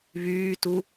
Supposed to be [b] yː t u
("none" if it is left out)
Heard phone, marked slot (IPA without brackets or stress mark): β